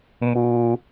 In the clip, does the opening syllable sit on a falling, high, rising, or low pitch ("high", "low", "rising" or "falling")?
low